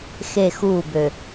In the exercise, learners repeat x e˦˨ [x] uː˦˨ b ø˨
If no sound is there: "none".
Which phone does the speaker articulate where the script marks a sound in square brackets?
x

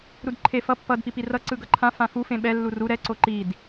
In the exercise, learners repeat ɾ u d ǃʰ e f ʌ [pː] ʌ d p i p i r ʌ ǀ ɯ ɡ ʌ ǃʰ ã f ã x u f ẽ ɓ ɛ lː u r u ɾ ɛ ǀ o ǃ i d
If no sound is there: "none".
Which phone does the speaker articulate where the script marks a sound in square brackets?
pː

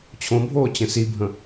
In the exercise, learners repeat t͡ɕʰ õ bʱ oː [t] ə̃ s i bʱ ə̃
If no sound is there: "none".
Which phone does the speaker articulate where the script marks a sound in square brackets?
t͡ɕ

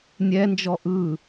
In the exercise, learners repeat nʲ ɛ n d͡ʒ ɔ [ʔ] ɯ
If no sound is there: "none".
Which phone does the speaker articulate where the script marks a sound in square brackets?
ʔ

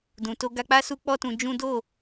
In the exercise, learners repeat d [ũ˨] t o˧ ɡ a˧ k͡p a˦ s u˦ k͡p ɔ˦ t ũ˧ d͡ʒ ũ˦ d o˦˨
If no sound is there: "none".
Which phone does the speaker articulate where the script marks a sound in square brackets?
ũ˨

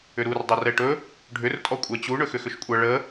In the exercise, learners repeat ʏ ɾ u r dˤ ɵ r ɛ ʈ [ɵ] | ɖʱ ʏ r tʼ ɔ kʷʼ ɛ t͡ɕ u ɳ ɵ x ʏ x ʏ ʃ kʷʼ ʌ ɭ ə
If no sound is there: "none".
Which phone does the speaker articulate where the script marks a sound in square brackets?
ɵ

